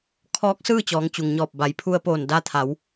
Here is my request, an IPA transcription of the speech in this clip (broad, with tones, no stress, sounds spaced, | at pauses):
kʰ ɔː˧˥ k̚ s ɯː˥˨ t͡ɕ ɔː˩˧ ŋ t͡ɕ u˩ ŋ ɲ ɔː˧˩ p̚ b a˩˧ j pʰ u˧ ə̯ p oː˧˩ n d a˧ t̪ʰ a˩˧ w